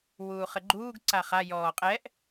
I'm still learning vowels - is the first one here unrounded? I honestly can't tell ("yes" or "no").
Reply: no